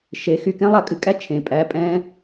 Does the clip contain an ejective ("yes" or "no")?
yes